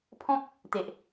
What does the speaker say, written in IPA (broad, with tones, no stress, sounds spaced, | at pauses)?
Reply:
pʰ ɔ̃˦ k̚ | t̪ e˨ ʔ